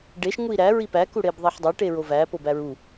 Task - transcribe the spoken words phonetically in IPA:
ɖ e ʃ ŋ u i̯ ɾ æ ɹ i p æ k u ɽ e b ðˤ i ħ dˤ æ ʈ e ɹ o v æ p o b æ ɹ u

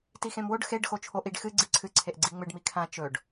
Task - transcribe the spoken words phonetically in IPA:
t i x ẽ m w o ɖ x e ɖ x o t͡ʃʰ o ʔ i ɖ x ɨ ɡ͡ǀ i ǀʰ ɨ ǀʰ e ʔ ɡ͡ǀ i ŋ͡m ɨ ɖ m i kʰ ã t͡ʃ ɵ ɖ

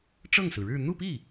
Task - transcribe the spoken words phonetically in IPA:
ʈ͡ʂ ɤ˥˩ ŋ s ɹ̩˩ ɻ ɻ̩˥˧ n̪ u˥˧ p i˥˩

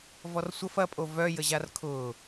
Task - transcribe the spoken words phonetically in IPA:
v ɔ r sʷ ə f ɐ pʼ o v œ j ə ʑ a r kʰ ʊː

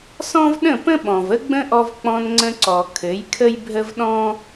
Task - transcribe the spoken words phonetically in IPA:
s ɔ̃˦ v ɗ ə̃˦˨ p ə̃˦ ɓ ɔ̃˨ v ə˦ ɡ͡b ə̃˦ ʔ ɔ˧ v k͡p ɔ̃˧ n ŋ͡ǀ ə̃˧ ǀ ɔ˨ kʰ ɘ˨˦ j kʰ ə˦ j bʱ ə˦ v ɗ ɔ̃˦

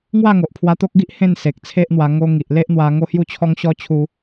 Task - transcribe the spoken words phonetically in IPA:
ŋ w a˥˧ ŋ o˨ ʔ pʰ w a˧ t̪ o˦ k̚ ɡ i˦ ʔ h ẽ˥˧ n s e˨ k̚ t͡sʰ e˦ ʔ n̪ w a˧ ŋ o˧ ŋ i˨ ʔ l e˦ ʔ n̪ w a˧ ŋ o˦ h j u˥˧ t͡ɕʰ ɔ˦ ŋ ɕ ɔ˦ t͡ɕʰ u˦

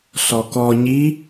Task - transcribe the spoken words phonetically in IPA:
ɬ ɔ k ɔ ɲ i

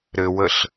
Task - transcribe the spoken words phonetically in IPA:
ɾ ɘ w ə ɬ

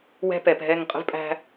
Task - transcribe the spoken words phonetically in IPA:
w ɛ̤˦ p ɛ˨ p ɦ ɛ˦˨ ŋ qʼ ə̤˦ v pʼ æ̤˦

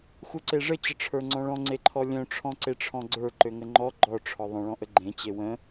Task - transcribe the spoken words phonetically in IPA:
x u ǀ e ʐ ə t͡ɕ ə ʈ͡ʂʰ ə˞ ŋ͡ǀ ɔ̃ ɭ ɔ̃ ŋ͡ǀ e ǃʰ ɔ lʲ œ̃ ʈ͡ʂʰ ɔ̃ ǀ e ʈ͡ʂʰ ɔ̃ ɡ͡ǀ ə˞ ǃ ø ŋ ə ŋ͡ǃ ɔ ɡ͡ǃ ɔ ʈ͡ʂʰ ɔ ðˤ ə̃ ɭ ɔ̃ ʔ ə ɡ͡ǃ ẽ t͡ɕ e w ə̃

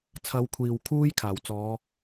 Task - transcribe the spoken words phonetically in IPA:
t͡sʰ ɐ˨˧ w kʷʰ iː˨ w kʰ uː˧ j kʰ aː˨˩ w t͡s ɔː˨˧

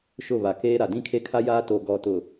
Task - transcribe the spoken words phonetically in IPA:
ʃ ʊ˦˨ β a˨ k eː˦ ɾ a˨ d ĩ˦ kʰ e˦ kʰ a˦ j aː˦ t o˨ ɡ ɔ˨ t ʊ˨

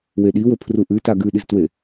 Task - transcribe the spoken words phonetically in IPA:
w e ɗ i w ɵ pʰ r u ʔ ʉ t a ɡ ʉ ɗ i z t w e

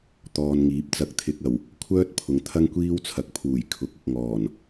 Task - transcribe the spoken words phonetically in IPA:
t̪ ɔː˧ n ŋ iː˨˥ p̚ t͡s ɐ˧ k̚ t̪ʰ ɪ˧ k̚ ɐ˨˩ w | kʷʰ œː˥ t̚ pʰ ʊ˨˧ ŋ t̪ʰ ɐ˥ ŋ kʷ iː˥ w t͡sʰ ɐ˨˥ k̚ pʰ uː˨˩ j kʰ ʊ˨˥ k̚ ʊ˨ k̚ ŋ ɔː˨˩ n

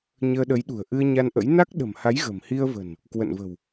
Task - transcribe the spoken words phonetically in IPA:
ɲ əː˧ ɗ ə˨˦ j ɗ ṳ˨˩ ə̯ ʔ ɨ˧ ə̯ ɲ a˧ n ʔ ə̰˧˥ j n a˦˥ k̚ ɗ ə̤˨˩ m h a˨˦ j ɣ ə̤˨˩ m h i˧ ə̯ v ə̤˨˩ n | k w ə̰˧˨ n v ə̤˨˩ w

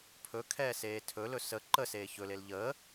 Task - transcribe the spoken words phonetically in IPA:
pʰ ɵ kʰ ɛː s eː tʰ ɵ l ɵ s ə ǃ ə s eː ç ɵ l e l ʎ əː

